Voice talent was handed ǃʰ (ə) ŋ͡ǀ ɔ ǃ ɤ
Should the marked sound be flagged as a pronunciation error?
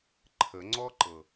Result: no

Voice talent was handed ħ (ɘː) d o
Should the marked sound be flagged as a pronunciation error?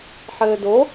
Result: no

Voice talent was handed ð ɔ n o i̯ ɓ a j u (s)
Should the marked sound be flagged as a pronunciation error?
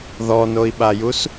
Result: no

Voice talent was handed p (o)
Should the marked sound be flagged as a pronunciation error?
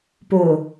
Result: no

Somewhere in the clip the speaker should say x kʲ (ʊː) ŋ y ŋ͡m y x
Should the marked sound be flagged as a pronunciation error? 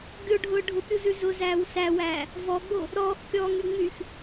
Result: yes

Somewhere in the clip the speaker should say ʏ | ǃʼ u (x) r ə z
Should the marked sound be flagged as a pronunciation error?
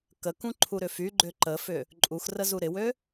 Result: no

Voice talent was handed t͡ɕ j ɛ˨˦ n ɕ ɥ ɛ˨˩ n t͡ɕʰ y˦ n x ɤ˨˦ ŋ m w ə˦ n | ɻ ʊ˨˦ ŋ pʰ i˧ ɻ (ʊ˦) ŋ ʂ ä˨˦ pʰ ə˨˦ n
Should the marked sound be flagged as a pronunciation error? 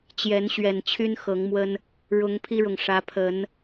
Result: yes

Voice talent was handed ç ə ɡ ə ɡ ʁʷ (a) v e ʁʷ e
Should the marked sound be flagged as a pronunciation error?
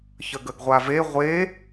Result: no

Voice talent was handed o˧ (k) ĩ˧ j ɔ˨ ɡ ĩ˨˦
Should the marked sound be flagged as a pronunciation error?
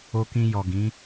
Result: no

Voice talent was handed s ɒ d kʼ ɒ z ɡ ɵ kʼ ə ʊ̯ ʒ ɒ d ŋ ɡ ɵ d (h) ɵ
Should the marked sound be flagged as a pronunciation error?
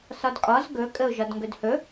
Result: no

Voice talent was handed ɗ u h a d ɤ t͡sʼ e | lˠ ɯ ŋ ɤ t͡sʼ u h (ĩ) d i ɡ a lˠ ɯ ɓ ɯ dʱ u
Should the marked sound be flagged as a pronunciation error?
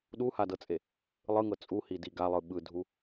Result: yes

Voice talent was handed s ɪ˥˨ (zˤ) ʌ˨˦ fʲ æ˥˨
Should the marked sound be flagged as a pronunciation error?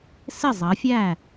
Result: no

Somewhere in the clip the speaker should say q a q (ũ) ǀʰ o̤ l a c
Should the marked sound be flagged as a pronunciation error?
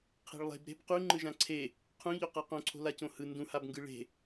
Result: yes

